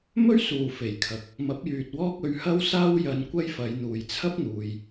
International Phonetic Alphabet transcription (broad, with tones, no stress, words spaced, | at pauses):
mɵ˥ɥsuː˨˩ fe˨˩jkʰɐ˨˥k̚ | mɐ˨˥p̚jyː˨t̚wɔː˥k̚ ɵ˧ɥhɐ˥wsaː˥w jɐ˧nkʷɐ˥jfɐ˨˧j n̪uː˨jt͡sʰɐ˥p̚n̪uː˨j